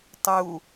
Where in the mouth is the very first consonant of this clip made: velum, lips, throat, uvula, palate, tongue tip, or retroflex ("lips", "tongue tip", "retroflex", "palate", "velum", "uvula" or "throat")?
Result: tongue tip